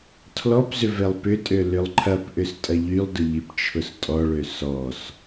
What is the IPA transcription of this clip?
tʰ l ɔ p z ʏ v ɛ lˠ p ʏ tʼ ø l ʏ lˠ ǃʰ ɐ p ʔ ʏ s tʼ ɐ ʎ y lˠ d ʊ ʎ i p t͡ʃʰ ʊ s tʼ ɔ ɭ ø s ɔ s

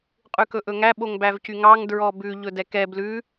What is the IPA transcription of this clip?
qʼ ʉ k ɵ ʔ ɵ ŋ æ ɓ o ŋ b æ v c y ŋ ɑ ŋ d ɹ ɔ b ʉ ʎ ɵ d ɛ k ɛ b l ʉ

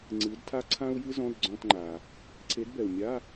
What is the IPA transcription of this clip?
ŋ͡ǀ ɨː˨˥ d tʰ a˥ ǀʰ ã˥ u̯ j ɨ˥ z ɔ̃˧˥˧ d ɡ͡ǀ ɔ̃˧˥˧ t ŋ͡ǃ a˩ | ǀʰ e˨˥ d b ɛ˩ u̯ mʲ a˧˥˧

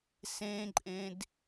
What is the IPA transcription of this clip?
s ẽ ǃʼ ẽ d

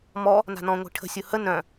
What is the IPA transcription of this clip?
m ɔ | n a̤ n ɔ̃ ŋʷ i̤ ʈʰ ə̤ sʲ ʊ h ə n œ̃

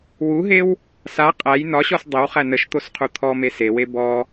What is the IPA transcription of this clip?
w u ɦ e w | s a qʼ æ j n ɒ ɕ ɔ s dˤ e w χ æ n ə ʃ t̪ o s qʰ u t̪ʰ ɔ m e s e w e b ɔ

